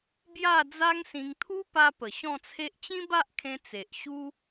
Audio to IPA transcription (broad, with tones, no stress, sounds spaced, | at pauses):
b j a˥˧ d͡z a˦ ŋ s ĩ˧ ŋ t̪ʰ u˦ p a˧ p ə˨˩ ɕ ɔ̃˥˧ t͡sʰ e˦ ʔ t͡ɕ ĩ˦ b a˦ ʔ kʰ ẽ˧ t͡s e˨ ʔ ɕ u˦